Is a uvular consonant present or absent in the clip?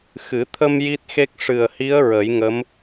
absent